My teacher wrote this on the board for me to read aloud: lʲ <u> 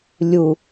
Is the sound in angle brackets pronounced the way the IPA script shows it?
yes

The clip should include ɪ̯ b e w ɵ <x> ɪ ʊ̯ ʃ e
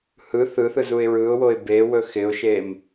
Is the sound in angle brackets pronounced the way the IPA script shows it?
yes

